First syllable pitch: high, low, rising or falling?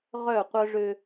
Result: falling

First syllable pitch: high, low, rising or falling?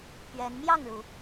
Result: rising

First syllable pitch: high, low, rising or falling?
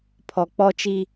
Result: low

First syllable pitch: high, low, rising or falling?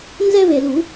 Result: high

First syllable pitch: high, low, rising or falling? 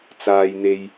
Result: low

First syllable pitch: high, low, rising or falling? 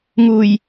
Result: low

